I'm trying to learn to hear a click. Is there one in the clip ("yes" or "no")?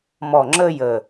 yes